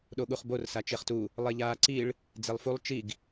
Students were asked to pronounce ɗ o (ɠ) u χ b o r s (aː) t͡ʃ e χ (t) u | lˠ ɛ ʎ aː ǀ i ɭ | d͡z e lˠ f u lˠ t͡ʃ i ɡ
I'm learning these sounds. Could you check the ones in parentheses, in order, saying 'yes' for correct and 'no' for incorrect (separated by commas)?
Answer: yes, no, yes